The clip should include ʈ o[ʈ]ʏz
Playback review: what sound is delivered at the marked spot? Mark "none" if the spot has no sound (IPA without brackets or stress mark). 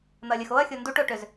ʈ